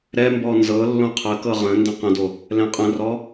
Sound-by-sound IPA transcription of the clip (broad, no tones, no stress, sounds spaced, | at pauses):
ɾ ɛ m b ɔ n z ɤ lː õ qʰ ə k ɤ ʁ ə̃ n d ə̃ q ə̃ d o | l ɛ̃ qʼ ə̃ r ɔ